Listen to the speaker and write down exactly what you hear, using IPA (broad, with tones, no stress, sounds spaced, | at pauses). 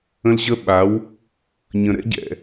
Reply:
ə̃˦ l ʑ ə˦ ɓ a˨˦ w | ɲ ə̃˨ ɾ ɛ̰˦ ɟ ɛ̰˨